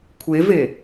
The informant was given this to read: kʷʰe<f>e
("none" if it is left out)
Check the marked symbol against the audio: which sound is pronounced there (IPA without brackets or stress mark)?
v